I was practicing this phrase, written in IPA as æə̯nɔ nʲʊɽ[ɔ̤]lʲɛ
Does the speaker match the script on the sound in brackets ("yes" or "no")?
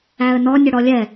no